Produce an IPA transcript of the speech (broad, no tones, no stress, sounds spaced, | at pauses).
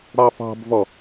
ɽ ɑ f ɑ̤ b v ɔ